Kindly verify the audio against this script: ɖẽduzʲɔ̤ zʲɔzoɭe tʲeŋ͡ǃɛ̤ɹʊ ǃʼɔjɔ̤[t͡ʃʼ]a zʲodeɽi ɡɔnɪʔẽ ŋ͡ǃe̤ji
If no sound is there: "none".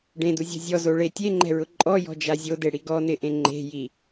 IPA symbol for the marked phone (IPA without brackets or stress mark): d͡ʒ